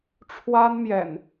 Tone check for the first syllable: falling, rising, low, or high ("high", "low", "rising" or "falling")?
high